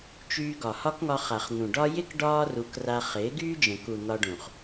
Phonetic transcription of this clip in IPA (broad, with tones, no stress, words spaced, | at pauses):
t͡ʃyː˧ɡɒ˨ hɒ˦kŋɒ˧χa˨χ n̪ũ˨ ɖɒ˦ jɪ˦k ɖɒː˦ru˨˦kra˧ χɪː˨˦ɡyː˦d͡ʒə̃˨ku˨ n̪ɒ˧ɖũ˨χ